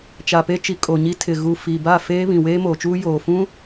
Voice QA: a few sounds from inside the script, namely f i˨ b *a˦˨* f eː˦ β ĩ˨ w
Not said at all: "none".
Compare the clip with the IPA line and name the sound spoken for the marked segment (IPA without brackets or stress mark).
a˦˨